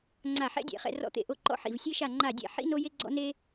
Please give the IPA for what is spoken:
ŋ͡ǀ a˦˨ ħ ɛ̰˥ dʲ ɛ̰˦˨ χ ɛ̰˦˨ r ɔ̰˦˨ t̪ ḛ˦˨ ʔ o˦˨ ǃ ɔ̰˥ ħ ḭ˦˨ v sʲ e˥ ʃ a˦˨ ŋ͡ǃ a˦˨ dʲ ɛ̰˦˨ ħ ḭ˥ n o˥ j e˥ ɡ͡ǀ ɔ̰˥ n e˥

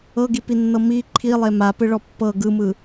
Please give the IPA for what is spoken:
ɤ ɡ i p i nː ɤ m i ǃʰ i lˠ e m a p ɯ ɭ ɔ pː ɤ ɡ ɯ m ɯ

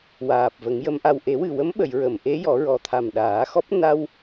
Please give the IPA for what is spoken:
w aː˨˩ p̚ v ə˨˩˦ ŋ j ə˧˥ m ʔ a˧ w ʔ e˨˩˦ w ɨ˨˩ w ə˧˥ m ɓ ə˨˩˨ j ɹ ə˨˩˨ m ʔ e˧˥ j ɔ˨˩˦ ɹ ɔ˨˩ t̪ʰ a˨˩ m ɗ aː˨˩˦ x ɔ˦˥ p̚ n a˧ w

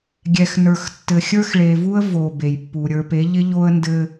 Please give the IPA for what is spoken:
ɡʲ ɛ˨ x n ə˞˨ x tː ɘ˨ xʲ ə˞˦ x ɭ e˨ v u˦ ə̯ v o˨ b e˨ j pː u˨ ɾʲ ə˞˨ p e˨˦ ʎ ɪ˦ ʎ o˦ ə̯ n d ɘ˦

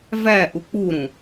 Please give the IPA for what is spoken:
v æ ʔ u k͡p u ɾ ũ

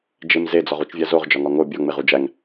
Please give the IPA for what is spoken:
d͡ʒ e m z e d͡z ɒ ʁ u t͡ʃ vʲ æ z o ʁ d͡ʒ ɒ ŋ ɒ ŋ o bʲ ɒ ŋ͡m e ʁ u d͡ʒ æ ŋ

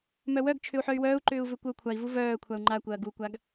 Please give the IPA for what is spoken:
m œ w œ ɡ t͡ʃʰ ʏ u̯ ħ œ y̯ w œː u̯ ǃ ʏː u̯ v ʏ kʷ œ u̯ kʷʰ a i̯ v u v œː kʷʰ a u̯ ŋ͡ǃ a kʷ ɐː ɡ u kʷ a ɡ

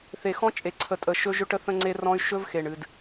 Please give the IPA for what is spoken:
θ e˨ x ɔ̃˦ t͡ʃʼ e˨ ǀʰ ə˨ tʼ ə˨ ʃ ɵ˦ ʒ ɵ˦ ʈ ə˦ θ ə̃˦ ŋ͡ǀ e˦ r ɔ̃˦ y̯ ʃ ɵ˦ v x e˨ ɳ ɨ˨ d

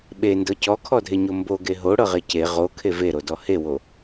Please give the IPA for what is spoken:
ɓ e n d ɤ c ɔ kʰ ɔ dʱ e ɲ o m b o ɡ e ɦ o ɽ ɤ ʁ e c e ʁ o kʰ e v e ɾ o d ɔ h e w o

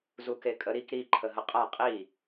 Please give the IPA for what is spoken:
z u k e kʼ ə ɾ i k ɾ i ǃʰ ə ɦ ə qʼ a qʼ i

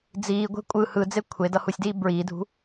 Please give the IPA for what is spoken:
d͡z iː ɡʷ e̤ kʷʼ ɯ h ɯ d͡z e kʷʰ e d ʌ h u sʲ d iː b ɹ iː dʱ ṳ

